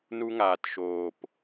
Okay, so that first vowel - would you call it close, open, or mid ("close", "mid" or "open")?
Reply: close